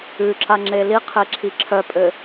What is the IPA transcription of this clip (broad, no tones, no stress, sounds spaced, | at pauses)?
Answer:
ʉ ǁ a ŋ͡ǁ e l i qʰ e ǁʰ i ǁʰ œ pʼ ɘ